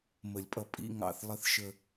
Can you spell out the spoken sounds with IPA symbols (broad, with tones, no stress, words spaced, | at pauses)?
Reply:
mə˨˩˦lʲpʼʌ˨ pʼḭ˧˥˧ŋɑ̰˦˨θ lˠə˦˨θʃə˦˨